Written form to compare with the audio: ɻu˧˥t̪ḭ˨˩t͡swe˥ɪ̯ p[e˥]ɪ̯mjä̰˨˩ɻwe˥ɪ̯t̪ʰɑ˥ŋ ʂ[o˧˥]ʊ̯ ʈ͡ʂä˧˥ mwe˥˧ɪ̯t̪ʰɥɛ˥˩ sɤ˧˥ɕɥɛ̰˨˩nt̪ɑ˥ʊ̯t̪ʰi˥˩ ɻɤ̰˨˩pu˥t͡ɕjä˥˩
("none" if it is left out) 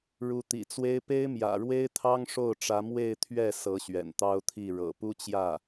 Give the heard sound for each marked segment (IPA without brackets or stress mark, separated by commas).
e˥, o˥˩